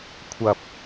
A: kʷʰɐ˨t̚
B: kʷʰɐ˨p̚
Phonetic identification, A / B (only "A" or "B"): B